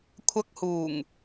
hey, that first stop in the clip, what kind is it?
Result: aspirated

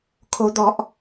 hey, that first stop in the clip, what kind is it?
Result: aspirated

